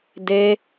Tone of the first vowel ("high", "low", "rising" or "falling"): high